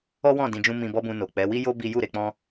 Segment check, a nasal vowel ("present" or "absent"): present